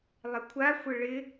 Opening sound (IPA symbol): lˠ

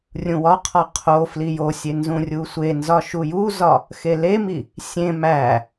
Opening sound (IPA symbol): rʲ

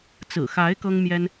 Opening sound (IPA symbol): t͡s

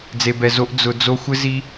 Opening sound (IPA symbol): d͡z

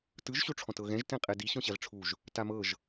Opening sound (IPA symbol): t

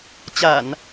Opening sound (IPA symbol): t͡ɕ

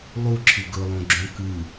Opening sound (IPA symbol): lˠ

